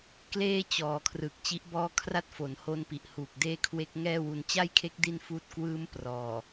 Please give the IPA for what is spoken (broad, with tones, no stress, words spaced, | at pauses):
kleː˥˩ t͡ɕɔː˩˦kʰrɯ˨˩k̚ t͡ɕi˦˥ʔbɔː˥˩ kʰra˥˩t̚ fo˩˦nho˦˥npi˨˩ʔ huː˨˩k̚deː˥˩kʰwe˦˥k̚ ŋɛː˥˩wu˧n t͡ɕa˥˩jkʰe˦˥k̚ di˥˩n fuː˥˩t̚ kwɯː˦˥m prɔː˨˩